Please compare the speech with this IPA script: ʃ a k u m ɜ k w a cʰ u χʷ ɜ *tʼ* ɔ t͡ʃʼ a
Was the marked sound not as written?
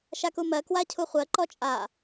yes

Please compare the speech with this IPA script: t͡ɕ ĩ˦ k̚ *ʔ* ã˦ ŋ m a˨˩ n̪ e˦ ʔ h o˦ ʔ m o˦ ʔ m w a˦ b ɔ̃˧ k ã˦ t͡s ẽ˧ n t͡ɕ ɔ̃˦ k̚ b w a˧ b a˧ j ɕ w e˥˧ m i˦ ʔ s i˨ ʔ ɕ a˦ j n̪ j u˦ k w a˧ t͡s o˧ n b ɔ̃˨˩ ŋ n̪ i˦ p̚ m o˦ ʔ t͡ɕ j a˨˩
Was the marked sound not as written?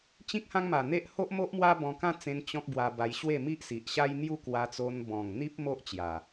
yes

